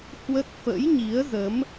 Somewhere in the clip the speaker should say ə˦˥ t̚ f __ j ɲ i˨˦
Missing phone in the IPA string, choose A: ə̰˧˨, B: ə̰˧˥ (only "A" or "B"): B